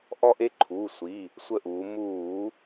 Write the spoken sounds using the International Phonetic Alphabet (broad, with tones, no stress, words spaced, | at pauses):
ʔɔ˦ʔe˦ǃʰuː˩˧˩ sʷi˩˧˩ | sʷə˦˨ʔuː˩˧ muː˧˩˧